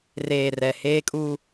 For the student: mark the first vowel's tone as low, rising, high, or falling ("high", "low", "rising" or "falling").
low